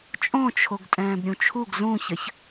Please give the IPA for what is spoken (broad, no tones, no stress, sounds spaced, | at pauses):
t͡ʃʼ õ t͡ʃʰ o ɡ tʼ ɛ̃ː b ɾʲ ũ t͡ʃʰ u ɡ z ũ ç ə ç